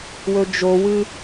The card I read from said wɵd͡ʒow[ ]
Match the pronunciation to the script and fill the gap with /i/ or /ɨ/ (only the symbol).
ɨ